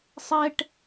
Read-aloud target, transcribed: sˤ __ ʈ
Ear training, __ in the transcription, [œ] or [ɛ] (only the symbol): ɛ